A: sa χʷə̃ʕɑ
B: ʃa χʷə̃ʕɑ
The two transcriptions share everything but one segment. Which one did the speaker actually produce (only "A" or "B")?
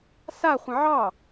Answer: A